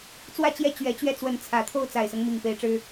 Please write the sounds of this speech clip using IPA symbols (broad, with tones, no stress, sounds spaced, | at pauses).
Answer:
t͡s w ä˥˧ t͡ɕ j ɛ˥˩ t͡ɕ ɥ ɛ˧˥ t͡ɕ ɥ ɛ˥˩ t͡s w ə˧˥ n t͡sʰ ä˨˩ t̪ʰ o˥˩ ʊ̯ t͡s a˨˩ ɪ̯ s ɤ˦ ŋ m i˨˩ ŋ p e˧˥ ɪ̯ ʈ͡ʂ ɻ̩˥